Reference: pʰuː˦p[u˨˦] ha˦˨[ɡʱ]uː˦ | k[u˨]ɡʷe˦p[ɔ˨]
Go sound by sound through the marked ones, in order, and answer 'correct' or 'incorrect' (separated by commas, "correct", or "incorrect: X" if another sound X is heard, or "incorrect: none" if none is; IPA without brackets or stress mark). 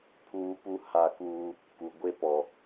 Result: incorrect: u˦, incorrect: k, correct, correct